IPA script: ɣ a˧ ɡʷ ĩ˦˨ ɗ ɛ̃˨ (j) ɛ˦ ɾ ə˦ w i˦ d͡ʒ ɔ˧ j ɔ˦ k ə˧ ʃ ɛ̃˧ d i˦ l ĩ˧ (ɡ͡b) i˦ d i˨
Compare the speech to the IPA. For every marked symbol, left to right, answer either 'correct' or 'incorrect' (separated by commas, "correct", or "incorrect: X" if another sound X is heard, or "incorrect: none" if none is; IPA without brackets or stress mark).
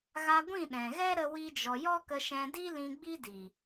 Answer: incorrect: ɣ, correct